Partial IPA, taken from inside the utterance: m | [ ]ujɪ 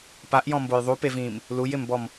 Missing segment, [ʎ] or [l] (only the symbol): l